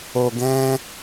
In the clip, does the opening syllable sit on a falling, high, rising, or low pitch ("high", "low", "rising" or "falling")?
low